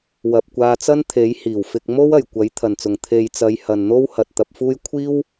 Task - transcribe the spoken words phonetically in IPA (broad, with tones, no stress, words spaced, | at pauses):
wɐ˨p̚kʷaː˧t͡sɐ˥n t̪ʰe˨˥jhiː˨˩wfɪ˧k̚ mo˥wɐ˨˩jkʷɐ˨˥j t̪ʰɐ˨˩nt͡sʊ˨˩ŋ t̪ʰe˨jt͡sɐ˨˧j hɐ˨nn̪o˥w hɐ˨t̚t̪ɐ˧p̚fuː˥j kʷʰiː˥w